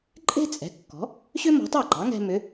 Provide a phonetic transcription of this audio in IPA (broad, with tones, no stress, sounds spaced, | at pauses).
ǃʼ e̤˥ t͡sʼ ɛ̤˩˥ kː ɔ̤˩˥ | ɕ ʏ˥ m ɔ̤˩˥ tˤ ɑ˥˩ ɡ͡ǃ ɑ˩˥ ŋ ɛ̤˧ m ʏ˩˥